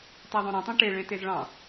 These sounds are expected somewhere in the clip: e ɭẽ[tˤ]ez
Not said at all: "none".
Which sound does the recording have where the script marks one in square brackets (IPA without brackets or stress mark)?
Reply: t